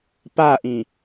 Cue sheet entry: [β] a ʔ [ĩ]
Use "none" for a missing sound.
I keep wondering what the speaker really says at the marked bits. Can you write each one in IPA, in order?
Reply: p, ĩ

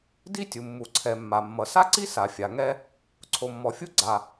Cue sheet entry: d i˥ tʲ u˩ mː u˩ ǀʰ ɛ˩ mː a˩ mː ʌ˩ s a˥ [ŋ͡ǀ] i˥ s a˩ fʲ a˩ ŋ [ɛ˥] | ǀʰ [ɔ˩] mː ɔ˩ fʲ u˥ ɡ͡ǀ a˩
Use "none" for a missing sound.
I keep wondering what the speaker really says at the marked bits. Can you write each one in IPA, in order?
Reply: ǀ, ɛ˥, o˩

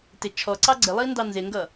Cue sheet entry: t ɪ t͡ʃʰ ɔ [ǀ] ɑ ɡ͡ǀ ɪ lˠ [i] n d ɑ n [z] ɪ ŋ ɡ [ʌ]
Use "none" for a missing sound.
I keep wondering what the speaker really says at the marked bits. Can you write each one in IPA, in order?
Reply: ǀ, i, z, ʌ

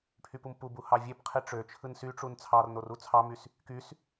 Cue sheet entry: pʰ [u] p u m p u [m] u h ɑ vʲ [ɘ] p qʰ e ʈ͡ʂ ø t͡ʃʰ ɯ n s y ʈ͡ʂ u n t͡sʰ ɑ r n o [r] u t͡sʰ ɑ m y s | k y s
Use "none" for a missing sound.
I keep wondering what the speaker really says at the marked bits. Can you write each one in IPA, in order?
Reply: y, b, e, r

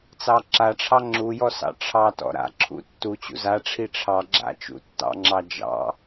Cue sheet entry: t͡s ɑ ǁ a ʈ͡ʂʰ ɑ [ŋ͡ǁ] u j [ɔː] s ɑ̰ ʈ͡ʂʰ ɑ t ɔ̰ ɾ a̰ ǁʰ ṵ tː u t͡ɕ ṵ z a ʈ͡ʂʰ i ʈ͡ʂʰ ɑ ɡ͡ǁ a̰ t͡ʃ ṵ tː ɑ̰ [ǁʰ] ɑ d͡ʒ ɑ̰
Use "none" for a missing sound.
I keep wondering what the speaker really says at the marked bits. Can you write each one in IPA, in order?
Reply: ŋ͡ǁ, ɔ, ŋ͡ǁ

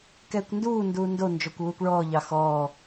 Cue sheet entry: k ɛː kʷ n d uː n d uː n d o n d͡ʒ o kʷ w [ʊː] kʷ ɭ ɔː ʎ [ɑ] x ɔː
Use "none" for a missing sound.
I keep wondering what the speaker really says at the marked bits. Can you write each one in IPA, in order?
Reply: uː, ɑ

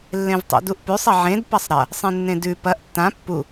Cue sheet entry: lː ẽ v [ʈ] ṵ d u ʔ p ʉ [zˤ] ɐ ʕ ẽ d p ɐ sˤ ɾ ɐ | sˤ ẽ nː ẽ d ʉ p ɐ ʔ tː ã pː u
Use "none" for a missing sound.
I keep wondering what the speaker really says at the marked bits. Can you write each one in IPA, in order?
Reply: tˤ, sˤ

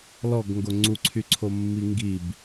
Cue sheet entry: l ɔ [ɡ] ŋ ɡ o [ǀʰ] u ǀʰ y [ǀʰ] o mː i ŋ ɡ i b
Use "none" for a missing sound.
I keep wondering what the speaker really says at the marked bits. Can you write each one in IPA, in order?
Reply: ɡ, ŋ͡ǀ, ǀʰ

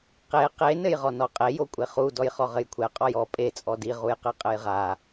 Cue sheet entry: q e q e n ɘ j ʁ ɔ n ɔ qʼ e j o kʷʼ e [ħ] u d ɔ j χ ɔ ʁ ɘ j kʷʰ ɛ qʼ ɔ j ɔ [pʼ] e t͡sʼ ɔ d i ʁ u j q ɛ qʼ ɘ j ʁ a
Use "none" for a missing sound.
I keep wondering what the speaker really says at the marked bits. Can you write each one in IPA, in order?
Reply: χ, pʼ

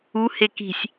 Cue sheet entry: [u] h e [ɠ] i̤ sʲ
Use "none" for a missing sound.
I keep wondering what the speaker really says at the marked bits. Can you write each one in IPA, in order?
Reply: u, k

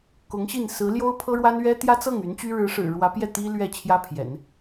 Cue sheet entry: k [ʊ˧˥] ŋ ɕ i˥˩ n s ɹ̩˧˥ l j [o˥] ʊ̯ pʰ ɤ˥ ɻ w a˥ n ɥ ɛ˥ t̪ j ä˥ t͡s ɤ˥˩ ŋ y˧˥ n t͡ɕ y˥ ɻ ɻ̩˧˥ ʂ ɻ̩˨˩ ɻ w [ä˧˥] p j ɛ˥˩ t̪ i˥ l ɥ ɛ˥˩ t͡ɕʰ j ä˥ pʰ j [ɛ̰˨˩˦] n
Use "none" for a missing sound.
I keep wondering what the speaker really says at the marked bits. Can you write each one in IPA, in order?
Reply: ʊ˧˥, o˥, ä˧˥, ɛ̰˨˩˦

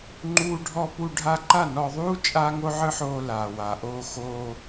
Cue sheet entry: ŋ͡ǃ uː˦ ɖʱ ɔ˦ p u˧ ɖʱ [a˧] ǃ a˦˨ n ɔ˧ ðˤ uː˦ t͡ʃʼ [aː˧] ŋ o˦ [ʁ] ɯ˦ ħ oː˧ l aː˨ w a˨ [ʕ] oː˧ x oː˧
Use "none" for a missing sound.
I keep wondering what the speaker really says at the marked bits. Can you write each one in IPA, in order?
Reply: a˧, aː˦, ʕ, ʔ

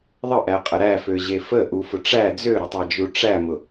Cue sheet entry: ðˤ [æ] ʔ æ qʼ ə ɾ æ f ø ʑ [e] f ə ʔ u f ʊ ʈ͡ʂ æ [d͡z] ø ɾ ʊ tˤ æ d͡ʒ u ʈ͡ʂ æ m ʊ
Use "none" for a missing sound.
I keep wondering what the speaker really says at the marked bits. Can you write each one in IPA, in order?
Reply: ə, e, d͡z

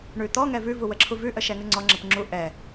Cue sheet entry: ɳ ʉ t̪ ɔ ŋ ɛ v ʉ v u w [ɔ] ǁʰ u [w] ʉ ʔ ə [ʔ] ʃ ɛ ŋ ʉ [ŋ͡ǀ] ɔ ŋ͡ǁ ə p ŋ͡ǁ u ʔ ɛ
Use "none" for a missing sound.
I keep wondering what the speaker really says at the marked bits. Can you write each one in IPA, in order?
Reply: ə, v, none, ŋ͡ǀ

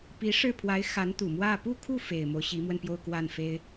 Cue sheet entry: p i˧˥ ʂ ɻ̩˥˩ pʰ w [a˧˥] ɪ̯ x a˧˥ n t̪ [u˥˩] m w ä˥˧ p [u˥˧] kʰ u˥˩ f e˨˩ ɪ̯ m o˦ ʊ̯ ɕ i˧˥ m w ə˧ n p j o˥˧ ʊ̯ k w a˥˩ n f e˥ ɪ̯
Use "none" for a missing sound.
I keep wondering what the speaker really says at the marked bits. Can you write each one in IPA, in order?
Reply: a˧˥, u˨˩, u˥˧

